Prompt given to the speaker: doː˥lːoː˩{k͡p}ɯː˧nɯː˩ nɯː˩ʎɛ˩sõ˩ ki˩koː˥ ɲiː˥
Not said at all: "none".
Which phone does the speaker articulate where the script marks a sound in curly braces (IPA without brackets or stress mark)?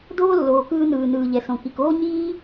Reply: k